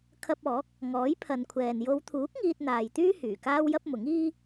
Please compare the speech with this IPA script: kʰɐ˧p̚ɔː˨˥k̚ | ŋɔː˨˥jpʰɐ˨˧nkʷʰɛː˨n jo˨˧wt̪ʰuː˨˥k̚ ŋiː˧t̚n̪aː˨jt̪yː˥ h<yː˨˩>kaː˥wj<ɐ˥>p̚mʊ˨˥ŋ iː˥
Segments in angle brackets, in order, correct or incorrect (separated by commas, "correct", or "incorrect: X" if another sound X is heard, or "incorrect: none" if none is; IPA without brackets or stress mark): correct, correct